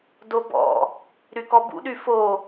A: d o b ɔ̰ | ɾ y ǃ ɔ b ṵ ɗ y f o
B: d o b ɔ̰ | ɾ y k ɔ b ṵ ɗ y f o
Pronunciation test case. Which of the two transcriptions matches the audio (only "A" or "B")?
B